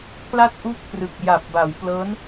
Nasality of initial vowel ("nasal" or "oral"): oral